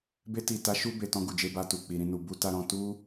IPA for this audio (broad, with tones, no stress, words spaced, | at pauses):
be˧ti˨ta˨˦ ʃu˧be˨ tɔ̃˧ɡu˨d͡ʒe˧ba˧ tu˨k͡pi˨ɾĩ˧nu˨ bu˧ta˧ɾɔ̃˧ tu˦